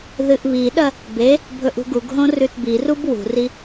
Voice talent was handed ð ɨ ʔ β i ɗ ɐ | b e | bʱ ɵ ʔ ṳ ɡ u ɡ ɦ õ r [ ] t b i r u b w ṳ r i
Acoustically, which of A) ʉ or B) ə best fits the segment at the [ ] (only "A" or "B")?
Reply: A